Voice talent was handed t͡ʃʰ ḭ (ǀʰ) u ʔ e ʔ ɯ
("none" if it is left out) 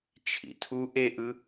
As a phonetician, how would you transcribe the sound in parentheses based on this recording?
tʰ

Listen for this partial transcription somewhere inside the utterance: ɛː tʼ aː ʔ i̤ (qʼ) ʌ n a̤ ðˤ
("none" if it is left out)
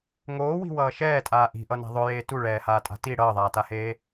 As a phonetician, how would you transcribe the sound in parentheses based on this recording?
ʔ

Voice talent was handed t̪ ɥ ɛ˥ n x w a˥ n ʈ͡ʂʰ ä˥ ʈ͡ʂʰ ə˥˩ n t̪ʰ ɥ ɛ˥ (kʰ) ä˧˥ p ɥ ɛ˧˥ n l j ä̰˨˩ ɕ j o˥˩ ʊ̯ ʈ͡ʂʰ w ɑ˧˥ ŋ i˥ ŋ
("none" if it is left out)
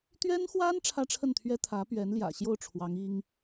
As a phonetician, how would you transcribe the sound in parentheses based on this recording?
t̪ʰ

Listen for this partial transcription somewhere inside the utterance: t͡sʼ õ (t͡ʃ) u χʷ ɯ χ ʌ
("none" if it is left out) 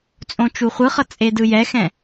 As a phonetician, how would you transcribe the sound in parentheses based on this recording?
t͡ʃ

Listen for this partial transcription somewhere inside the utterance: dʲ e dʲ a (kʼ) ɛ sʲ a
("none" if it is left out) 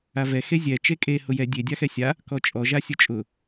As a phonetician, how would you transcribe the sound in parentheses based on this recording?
x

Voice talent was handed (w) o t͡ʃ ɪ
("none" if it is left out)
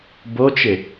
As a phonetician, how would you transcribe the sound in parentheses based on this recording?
b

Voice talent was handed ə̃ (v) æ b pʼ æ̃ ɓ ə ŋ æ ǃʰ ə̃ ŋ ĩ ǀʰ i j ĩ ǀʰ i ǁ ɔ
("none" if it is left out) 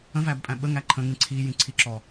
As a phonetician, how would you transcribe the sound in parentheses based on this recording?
v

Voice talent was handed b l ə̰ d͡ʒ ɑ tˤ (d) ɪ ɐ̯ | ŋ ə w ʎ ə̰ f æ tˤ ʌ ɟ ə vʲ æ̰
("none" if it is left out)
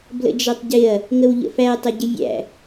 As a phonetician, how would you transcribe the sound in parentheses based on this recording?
ɟ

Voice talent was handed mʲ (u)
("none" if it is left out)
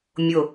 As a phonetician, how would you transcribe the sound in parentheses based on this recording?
ʊ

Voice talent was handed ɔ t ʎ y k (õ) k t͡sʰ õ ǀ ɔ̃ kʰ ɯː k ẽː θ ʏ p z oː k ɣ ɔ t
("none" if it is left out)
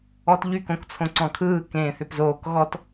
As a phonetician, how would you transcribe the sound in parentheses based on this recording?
õ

